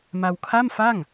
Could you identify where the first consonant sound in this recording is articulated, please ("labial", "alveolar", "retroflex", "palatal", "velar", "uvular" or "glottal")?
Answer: labial